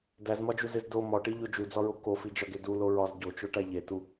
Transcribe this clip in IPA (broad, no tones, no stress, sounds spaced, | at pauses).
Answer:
d æ z m ɒ d͡ʒ u z e z d o m ɒ ʈ i ʎ o d͡ʒ u d͡z ɒ ɹ o k o f i d͡ʒ ɒ ɡ e d u l o ɹ ɒ z ɟ o t͡ʃ o ʈ æ ʎ e t u